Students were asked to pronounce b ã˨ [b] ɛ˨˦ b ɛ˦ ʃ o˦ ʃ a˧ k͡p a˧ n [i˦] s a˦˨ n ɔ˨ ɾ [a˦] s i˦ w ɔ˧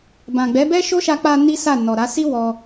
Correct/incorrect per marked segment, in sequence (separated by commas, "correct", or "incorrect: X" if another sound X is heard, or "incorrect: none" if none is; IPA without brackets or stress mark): incorrect: ɡ͡b, correct, incorrect: a˨˦